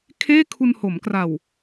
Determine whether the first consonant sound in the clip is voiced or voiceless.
voiceless